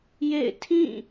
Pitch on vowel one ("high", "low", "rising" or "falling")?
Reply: falling